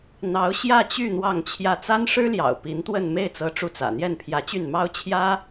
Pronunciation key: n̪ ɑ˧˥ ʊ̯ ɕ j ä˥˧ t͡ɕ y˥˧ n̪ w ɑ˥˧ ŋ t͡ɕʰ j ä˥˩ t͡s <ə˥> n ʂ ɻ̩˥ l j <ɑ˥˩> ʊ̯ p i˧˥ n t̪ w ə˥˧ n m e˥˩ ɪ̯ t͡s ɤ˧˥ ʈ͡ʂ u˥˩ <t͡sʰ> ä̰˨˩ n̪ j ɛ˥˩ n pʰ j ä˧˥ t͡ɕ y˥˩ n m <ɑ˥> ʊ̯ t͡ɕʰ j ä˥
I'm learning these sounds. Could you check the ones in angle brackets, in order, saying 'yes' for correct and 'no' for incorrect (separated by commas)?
no, no, no, yes